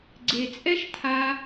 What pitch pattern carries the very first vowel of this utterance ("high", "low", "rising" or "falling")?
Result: low